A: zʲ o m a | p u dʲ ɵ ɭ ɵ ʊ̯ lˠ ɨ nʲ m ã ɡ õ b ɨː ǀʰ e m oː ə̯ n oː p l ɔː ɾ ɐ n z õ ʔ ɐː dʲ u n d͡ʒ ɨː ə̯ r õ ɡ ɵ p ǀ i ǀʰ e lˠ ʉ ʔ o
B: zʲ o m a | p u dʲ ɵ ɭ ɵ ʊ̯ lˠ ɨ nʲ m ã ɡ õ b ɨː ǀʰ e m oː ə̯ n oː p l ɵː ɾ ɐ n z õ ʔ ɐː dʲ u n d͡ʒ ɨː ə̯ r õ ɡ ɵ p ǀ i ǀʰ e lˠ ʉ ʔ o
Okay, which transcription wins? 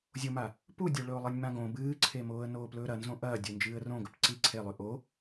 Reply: B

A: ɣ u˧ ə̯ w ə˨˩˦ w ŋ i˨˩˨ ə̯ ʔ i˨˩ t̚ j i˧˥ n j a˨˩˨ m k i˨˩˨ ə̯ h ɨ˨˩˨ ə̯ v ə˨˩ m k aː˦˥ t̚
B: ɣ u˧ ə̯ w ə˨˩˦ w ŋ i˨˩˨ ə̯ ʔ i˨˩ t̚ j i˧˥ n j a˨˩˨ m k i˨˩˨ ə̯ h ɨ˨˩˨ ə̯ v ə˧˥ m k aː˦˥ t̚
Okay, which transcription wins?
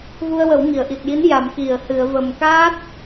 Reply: A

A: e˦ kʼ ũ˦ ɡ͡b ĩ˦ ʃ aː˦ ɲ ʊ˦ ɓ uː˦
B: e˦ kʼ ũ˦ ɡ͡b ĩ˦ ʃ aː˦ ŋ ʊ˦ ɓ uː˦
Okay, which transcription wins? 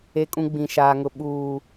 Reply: B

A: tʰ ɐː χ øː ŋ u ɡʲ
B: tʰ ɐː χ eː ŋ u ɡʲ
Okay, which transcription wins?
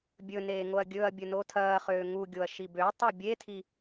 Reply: A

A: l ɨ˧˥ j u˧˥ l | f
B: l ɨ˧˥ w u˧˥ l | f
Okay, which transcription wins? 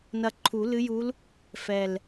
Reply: A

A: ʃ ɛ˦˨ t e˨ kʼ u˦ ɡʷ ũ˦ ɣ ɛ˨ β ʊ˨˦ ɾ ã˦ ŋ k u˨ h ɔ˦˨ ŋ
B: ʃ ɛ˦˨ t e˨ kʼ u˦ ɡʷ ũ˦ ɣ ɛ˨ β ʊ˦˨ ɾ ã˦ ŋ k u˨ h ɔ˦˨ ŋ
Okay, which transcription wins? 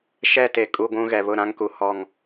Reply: B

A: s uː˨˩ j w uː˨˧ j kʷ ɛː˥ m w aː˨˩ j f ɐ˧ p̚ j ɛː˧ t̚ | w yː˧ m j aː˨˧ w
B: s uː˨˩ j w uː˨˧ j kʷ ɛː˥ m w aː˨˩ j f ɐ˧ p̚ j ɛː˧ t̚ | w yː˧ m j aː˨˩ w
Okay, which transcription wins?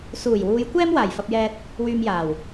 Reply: B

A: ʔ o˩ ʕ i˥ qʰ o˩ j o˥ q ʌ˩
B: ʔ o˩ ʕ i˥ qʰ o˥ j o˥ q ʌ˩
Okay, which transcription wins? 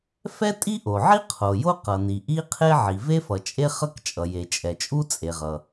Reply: A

